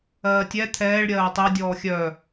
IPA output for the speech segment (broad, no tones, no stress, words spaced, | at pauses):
ɜːtʲɛ t̪ʰɛːɭ ɾʲɜːtˤe dʲɔːxʲœ